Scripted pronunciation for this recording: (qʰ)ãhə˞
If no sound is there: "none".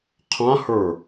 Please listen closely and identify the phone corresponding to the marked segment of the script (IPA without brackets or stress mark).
qʰ